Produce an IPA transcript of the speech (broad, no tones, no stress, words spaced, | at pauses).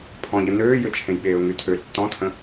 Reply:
pʰɔ̃ʎə nøːjøt͡ʃʰẽj ɓeːʊ̯ŋytʰø tːɔ̃tʰə̃